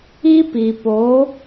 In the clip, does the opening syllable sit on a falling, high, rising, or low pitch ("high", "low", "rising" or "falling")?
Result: high